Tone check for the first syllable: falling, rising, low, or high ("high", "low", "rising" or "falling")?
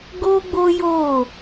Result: high